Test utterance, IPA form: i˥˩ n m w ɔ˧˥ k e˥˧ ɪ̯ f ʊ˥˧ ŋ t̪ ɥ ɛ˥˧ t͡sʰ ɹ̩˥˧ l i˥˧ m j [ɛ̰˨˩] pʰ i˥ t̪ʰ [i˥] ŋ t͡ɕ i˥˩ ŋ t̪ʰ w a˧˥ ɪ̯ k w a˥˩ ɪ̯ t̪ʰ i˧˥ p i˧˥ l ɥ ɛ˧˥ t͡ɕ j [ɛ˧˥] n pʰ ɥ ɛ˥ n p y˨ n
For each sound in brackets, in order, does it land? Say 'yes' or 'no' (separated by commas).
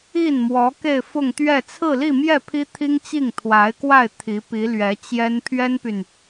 no, yes, no